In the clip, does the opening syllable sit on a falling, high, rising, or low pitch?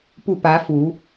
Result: falling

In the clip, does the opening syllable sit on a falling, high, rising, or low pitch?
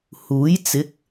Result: rising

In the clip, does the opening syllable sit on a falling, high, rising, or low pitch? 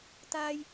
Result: high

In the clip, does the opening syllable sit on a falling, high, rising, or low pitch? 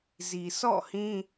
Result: low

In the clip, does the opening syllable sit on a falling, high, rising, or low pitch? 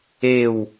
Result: falling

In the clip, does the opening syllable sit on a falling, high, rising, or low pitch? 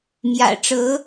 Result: low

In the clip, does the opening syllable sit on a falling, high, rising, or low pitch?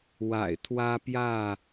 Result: low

